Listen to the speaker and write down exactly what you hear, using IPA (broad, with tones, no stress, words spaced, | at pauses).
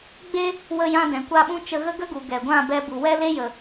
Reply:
ɡ͡be˦ | wə˧jã˧dɛ̃˨ kʷa˦ɓũ˦ t͡ʃə˧ɣə˦ɡə˦ɡu˨ ɡɛ˨ɡʷã˦˨ bɛ˧ bu˨wɛ˦le˦ jə˨